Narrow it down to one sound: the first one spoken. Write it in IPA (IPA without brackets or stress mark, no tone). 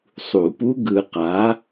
sˤ